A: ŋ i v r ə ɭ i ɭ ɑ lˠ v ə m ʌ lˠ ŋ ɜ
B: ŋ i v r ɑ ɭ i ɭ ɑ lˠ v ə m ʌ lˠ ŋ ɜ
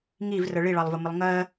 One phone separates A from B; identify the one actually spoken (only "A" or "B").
A